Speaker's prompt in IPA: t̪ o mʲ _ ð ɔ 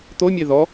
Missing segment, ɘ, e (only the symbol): e